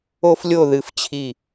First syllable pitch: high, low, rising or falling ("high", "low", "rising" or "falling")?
high